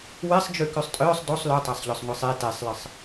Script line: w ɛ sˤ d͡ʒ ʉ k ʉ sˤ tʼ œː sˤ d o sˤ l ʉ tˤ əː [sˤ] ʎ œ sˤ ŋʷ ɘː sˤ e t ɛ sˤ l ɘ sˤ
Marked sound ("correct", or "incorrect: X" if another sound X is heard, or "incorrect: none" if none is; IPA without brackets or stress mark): correct